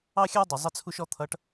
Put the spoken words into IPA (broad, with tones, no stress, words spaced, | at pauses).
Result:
ɑ˦xʲɑ˦dˤu˨ zˤə˦t͡sʰu˦ʃ ɔ˦t̪ʰʌ˨˦ʈ